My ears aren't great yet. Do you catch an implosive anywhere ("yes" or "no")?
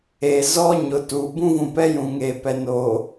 no